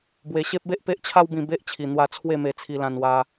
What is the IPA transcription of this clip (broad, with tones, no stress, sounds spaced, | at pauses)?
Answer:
b w e˧ ɕ e˦ p̚ b e˦ ʔ p e˦ ʔ t͡ɕʰ a˦ w b ĩ˧ b e˦ ʔ t͡ɕʰ i˨˩ n̪ w a˧ t͡sʰ w e˥˧ m e˧ t͡sʰ i˧ l ã˧ n w a˧